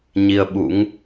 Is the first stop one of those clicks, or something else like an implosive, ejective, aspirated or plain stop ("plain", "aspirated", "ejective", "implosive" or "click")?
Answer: implosive